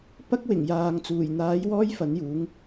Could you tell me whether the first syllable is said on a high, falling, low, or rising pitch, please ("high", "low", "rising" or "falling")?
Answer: high